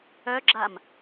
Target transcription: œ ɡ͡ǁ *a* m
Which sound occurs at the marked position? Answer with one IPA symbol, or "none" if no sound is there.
a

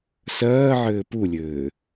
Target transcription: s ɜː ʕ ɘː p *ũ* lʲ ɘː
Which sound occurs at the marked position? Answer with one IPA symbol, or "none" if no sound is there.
u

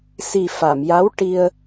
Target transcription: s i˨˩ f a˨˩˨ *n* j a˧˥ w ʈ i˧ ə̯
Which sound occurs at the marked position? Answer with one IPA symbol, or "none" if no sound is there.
m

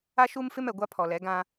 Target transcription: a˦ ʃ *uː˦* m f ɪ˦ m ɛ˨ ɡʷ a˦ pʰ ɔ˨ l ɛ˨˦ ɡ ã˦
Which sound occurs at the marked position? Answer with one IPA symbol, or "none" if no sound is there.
u˦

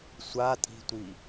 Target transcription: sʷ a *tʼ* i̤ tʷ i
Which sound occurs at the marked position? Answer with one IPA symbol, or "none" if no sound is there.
tʼ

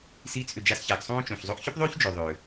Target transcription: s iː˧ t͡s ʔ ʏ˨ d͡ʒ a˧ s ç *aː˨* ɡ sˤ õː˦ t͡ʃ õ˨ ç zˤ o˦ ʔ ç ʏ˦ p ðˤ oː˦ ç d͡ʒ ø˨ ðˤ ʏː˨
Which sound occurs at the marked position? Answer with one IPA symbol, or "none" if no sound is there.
a˨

